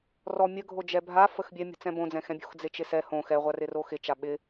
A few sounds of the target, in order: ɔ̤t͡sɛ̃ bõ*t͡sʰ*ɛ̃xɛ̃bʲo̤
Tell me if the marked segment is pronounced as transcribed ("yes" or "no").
no